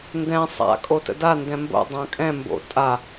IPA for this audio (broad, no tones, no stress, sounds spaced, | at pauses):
n d ɛ̃ sˤ a̰ kʼ o t ə̰ d a n d ɛ̃ m b o̰ dˤ ã kʼ ɛ̃ m b o̰ tʼ a